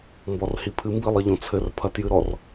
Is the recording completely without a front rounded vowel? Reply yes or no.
yes